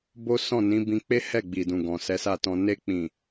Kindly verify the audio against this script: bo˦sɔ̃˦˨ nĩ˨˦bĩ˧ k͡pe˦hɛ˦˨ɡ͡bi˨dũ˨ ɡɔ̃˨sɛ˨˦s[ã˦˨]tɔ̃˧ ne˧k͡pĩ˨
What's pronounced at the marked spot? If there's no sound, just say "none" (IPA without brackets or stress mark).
a˦˨